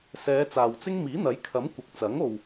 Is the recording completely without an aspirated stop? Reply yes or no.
no